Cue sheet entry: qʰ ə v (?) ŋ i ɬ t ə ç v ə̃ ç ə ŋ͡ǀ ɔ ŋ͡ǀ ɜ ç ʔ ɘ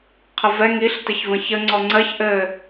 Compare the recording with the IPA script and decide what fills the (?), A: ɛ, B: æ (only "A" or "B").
A